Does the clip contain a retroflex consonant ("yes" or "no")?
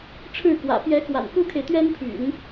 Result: yes